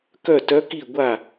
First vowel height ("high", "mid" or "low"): mid